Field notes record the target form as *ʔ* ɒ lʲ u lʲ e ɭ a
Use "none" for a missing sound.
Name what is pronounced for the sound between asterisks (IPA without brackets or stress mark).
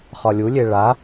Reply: χ